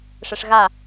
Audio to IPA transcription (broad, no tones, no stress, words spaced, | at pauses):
ʂɛʂɣa